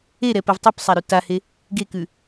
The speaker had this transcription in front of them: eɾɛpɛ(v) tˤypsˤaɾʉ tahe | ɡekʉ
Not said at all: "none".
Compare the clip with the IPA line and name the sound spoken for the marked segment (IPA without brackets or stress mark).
v